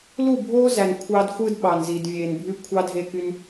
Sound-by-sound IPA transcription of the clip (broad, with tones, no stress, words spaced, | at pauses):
lu˦˨bʱoː˦zæ˨n kʷʰɑ˦dxʷɯ˦d ɓɑ˨nzi˨d vʲeː˨nbʱy˦ kʷʰɑ˦dʱe˦˨ky˦n